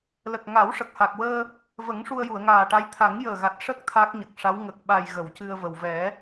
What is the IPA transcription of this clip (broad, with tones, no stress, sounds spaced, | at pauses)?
l ə˨˩ k̚ ŋ a˨˩˦ w ʂ ə˨˩ k̚ h a˨˩ k̚ w əː˧ | v ə˨˩˦ ŋ ʂ u˧ ə̯ j u˨˩˨ ə̯ ŋ aː˨˩ ʈ a˧˥ j t̪ʰ a˨˩˦ ŋ j əː˨˩ ɣ a˨˩ t̚ ʂ ə˦˥ k̚ t̪ʰ a˦˥ k̚ ɲ ə˨˩ k̚ ʂ a˧˥ w ŋ ə˨˩ k̚ ɓ a˨˩ j ɣ ə˨˩˨ w c ɨ˧ ə̯ v ə˨˩ w v ɛ˨˩˦